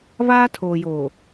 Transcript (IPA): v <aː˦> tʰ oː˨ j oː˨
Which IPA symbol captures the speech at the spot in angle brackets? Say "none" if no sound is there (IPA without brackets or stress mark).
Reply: aː˦